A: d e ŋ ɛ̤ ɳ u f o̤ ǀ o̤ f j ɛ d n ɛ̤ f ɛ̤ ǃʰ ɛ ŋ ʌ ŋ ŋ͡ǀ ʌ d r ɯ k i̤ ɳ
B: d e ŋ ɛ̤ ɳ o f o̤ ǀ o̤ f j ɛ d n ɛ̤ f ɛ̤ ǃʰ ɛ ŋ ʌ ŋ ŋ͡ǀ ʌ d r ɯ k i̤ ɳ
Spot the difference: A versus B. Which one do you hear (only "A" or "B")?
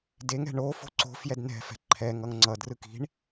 B